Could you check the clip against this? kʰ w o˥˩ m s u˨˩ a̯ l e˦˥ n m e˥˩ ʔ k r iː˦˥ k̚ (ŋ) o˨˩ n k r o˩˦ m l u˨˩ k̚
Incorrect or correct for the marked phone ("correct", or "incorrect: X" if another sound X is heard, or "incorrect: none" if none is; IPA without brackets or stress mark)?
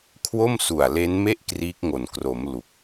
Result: correct